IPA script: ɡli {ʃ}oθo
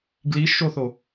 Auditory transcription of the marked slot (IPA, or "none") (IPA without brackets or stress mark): ʃ